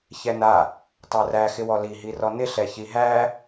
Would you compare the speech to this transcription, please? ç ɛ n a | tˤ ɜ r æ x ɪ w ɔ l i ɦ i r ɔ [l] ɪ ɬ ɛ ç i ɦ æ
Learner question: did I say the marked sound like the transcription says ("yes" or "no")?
no